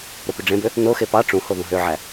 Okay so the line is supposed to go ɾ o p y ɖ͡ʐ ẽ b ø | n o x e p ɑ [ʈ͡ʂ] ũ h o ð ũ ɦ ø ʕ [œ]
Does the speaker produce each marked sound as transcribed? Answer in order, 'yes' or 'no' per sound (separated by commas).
yes, no